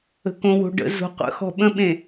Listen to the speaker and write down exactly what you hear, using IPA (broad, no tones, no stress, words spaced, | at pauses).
ə̤kõwo̤ɖə̰ zo̤qʷə̰xɔ̤ ɓə̃ɓẽ